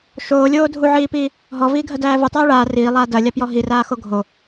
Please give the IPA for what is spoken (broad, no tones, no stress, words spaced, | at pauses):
ʃoːlʲoː dʱuʕiːpiː | ɦɔviːɡʱɐdæː vɯtˤæː ɭaː riːlˠaː dɐlʲapjɔ ɦiraːxo ɡʱo